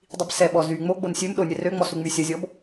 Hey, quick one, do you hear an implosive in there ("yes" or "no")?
yes